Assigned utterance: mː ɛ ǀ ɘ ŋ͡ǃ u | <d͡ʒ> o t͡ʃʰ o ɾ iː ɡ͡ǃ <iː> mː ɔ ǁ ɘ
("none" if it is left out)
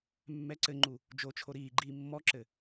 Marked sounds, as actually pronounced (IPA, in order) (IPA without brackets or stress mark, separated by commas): d͡ʒ, iː